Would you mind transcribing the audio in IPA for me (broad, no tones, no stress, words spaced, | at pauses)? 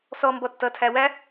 sɔ mbɔtːʌ tʰæwæ